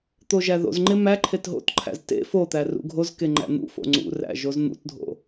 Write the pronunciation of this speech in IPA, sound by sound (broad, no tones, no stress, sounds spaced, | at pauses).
t̪ o ʒ æ ð o̰ z ŋ͡ǃ e m æ ǃʰ e t ɦ o̰ t ǃʰ æ̰ z t ḛ f o t̪ æ r ṵ ɡʱ o z k e ŋ͡ǃ æ̰ n̪ ṵ f o̰ ŋ͡ǀ ṵ r æ̰ ʒ o z n̪ ṵ t dʱ o̰